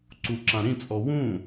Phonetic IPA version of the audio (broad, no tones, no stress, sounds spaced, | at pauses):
ǀ u ǁ ã ɾ ĩ t͡sʼ ɔ w ũ